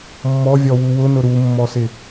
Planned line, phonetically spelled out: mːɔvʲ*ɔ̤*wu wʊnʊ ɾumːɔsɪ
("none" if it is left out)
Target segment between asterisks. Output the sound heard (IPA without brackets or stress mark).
ɔ